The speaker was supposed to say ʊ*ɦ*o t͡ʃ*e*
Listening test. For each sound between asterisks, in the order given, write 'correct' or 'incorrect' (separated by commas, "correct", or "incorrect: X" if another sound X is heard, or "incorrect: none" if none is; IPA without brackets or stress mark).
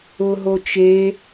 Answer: correct, correct